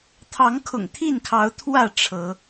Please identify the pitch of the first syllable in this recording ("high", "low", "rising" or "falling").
rising